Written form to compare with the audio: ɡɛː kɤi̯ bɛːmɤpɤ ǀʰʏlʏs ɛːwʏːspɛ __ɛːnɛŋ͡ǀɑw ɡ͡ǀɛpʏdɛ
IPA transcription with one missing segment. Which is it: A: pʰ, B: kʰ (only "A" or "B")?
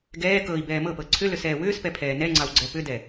A